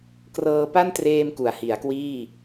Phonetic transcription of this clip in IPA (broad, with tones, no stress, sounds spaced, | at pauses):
k r ɤː˧ p a˥˩ n t r eː˧ m k u˩˦ a̯ h i˩˦ a̯ k w iː˥˩